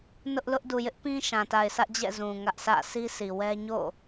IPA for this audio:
n ʊ˦ ʔ l ʊ˦ ʔ d u˨ j ɪ˦ ʔ p ĩ˦ ʃ ã˨ t a˨ ɪ̯ s ä˦ ʔ d͡ʑ ɛ̰˦˨ z ũ˨ ŋ ä˦ ʔ s ä̰˦˨ sʰ i˦ s i˨ w ɛ˦ ɲ o̰˦˨

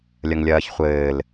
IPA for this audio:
lʲ ɐ ŋ lʲ ɐː ç χʷ ɘː l

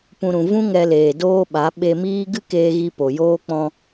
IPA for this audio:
p ũ˨ ɾ ũ˨ v ũ˦ ŋ ɛ˧ l eː˨ d oː˦ ɓ a˨˦ ɓ e˧ m iː˦ ɡ ɨ˦ k eː˧ ɣ i˧ p o˨ j oː˦ k͡p ɔ̃˧

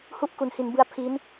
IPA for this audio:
h u˥˩ ʔ k u˩˦ n h i˩˦ n b ɯ˦˥ a̯ pʰ i˦˥ n

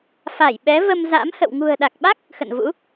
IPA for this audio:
f a˧˩ j ɓ ɛ˨˦ v ə˧ m z a̰˧˥ m h ə̰˧˨ w ŋ ṳ˨˩ ə̯ ɗ a˨˩ k̚ ɓ a˦˥ k̚ | x ə̰˧˨ n v ṵ˧˥

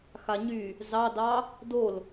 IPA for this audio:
x a ɲ y | z ɑ d ɑ | d o l

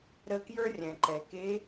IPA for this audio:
ɾ ə˧˥ k j ə˞˥ rʲ ɛ̃˩ ǃ ɛ˩ k e˧˥

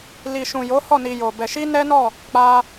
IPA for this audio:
l i˨ ʃ ũ˨ j o˨˦ h ɔ˦˨ n i˨ j o˨ b ɛ˧ ʃ i˦ n ɛ˦ n ɔ˦˨ | k͡p a˦

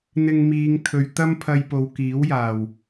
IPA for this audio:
n̪ ɪ˧ ŋ m iː˨˧ ŋ t̪ʰ ɵ˨ ɥ t̪ ɐ˥ m pʰ ɐ˧ j p o˨˧ w k iː˨˥ w j aː˨˩ w

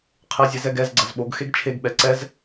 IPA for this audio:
qʰ e zʲ ɛ z ɛ ɡ ɛ z ɡ͡ǀ ɐ z ɓ o ɡ x e ɡ t͡ʃʰ e ɡ ɓ ɛ ǀ ɛ z

